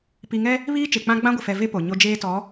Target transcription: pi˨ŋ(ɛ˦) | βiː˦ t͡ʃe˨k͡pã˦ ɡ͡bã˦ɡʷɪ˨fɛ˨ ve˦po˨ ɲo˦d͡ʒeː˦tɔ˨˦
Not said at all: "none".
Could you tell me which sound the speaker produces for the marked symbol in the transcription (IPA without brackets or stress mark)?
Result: ɛ˦